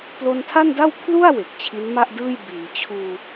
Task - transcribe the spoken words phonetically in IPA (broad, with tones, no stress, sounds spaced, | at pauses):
p l o˧ n tʰ a˥˩ n d a˥˩ w pʰ l u˥˩ a̯ w e˨˩ k̚ t͡ɕʰ i˦˥ n m a˥˩ ʔ d ɯː˥˩ j b iː˩˦ t͡ɕʰ uː˧